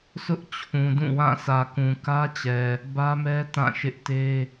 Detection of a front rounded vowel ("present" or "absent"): absent